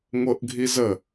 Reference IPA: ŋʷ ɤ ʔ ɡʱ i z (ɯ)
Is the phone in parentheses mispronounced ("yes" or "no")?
yes